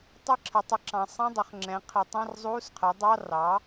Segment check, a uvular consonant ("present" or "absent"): present